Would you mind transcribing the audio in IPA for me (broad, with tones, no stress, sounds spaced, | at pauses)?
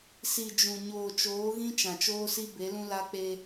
s i˨ d͡ʒ ũ˨ ɲ oː˨ t͡ʃ oː˨˦ ɣ ĩ˦ t͡ʃ ã˨ t͡ʃ oː˦ s i˦ b e˨˦ l ũ˦ l a˦ k͡p e˦